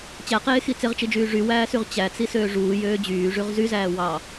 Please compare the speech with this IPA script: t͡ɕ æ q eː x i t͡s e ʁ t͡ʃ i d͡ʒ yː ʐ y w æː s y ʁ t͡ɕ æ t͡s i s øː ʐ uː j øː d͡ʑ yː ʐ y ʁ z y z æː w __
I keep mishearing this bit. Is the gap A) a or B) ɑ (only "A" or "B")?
B